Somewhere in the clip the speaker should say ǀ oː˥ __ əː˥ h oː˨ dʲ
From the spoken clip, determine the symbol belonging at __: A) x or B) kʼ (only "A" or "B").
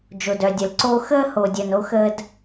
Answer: A